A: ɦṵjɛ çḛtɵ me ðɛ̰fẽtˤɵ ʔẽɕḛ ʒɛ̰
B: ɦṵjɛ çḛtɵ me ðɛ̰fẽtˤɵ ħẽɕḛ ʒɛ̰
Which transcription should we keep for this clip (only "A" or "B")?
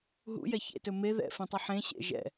B